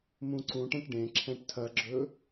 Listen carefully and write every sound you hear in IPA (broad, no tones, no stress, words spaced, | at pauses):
mũǀũʈɛ̃ʈ ɖẽǁʰɛ̃ʈ tʰɐɡ͡ǁɵ